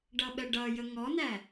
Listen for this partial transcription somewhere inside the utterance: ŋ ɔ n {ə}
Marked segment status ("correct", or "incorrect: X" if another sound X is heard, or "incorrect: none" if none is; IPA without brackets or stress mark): incorrect: æ